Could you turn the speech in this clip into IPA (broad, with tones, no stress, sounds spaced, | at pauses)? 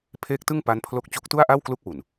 pʰ eː˦˥ k̚ t ɯ˥˩ ŋ p a˦˥ n pʰ l o˦˥ k̚ t͡ɕ u˦˥ k̚ t u˥˩ a̯ ʔ a˥˩ w k l u˦˥ k̚ w u˨˩ n